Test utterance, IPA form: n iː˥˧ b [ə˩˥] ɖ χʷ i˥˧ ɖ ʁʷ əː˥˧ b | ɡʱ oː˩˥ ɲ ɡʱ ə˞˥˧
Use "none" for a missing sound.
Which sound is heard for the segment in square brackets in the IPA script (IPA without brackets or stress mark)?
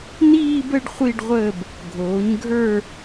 ə˥˧